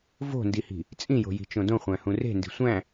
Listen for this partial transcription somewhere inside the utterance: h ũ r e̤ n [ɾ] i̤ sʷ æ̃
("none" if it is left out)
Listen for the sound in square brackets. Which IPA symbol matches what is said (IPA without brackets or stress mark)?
d